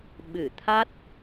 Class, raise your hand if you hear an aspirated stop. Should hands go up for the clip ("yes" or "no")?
yes